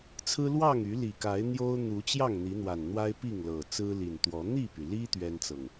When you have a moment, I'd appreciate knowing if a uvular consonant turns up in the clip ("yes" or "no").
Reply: no